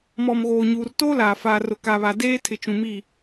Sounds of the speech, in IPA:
mɔ˨m ɣoː˨ɲu˨r toː˦laː˨ faː˨ rʊ˨ ka˨βa˨ deː˦tʰɪ˨t͡ʃũ˨mi˦˨

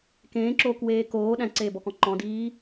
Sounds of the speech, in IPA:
kẽːǁoːkweː koː ɗæ̃ǀeːbɔkɔ̃ ǃɔ̃diː

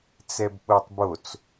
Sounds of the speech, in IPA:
t͡sɛbɓotˤbot͡s

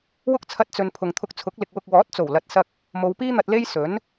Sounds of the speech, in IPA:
wʊ˥k̚t͡sʰɐ˧t̚t͡sɵ˨n pʰʊ˨ŋt̪ʰʊ˧k̚t͡sʰʊ˨˥k̚ lɪ˨k̚wʊ˧k̚ wɔː˨˥t̚t͡so˨˩wlɐ˨t̚ sɐ˧k̚ | mo˨˧wpiː˥n̪ɐ˧t̚ le˥j sɵ˨˥n

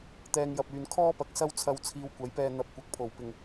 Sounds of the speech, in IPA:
t̪ɛː˧ŋjɐ˨p̚yː˨n kʰɔː˥pɐ˨k̚ sɐ˥wt͡sʰɐ˧w t͡sʰiː˧wkʷɐ˨˥jpɛː˧ n̪ɐ˨p̚ kʷɐ˨k̚pʰo˨˩w pɪ˨˩ŋ

